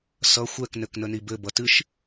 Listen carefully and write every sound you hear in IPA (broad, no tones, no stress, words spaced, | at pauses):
sʌ xʷɛk nɘknənibɘ bʌtɨʃ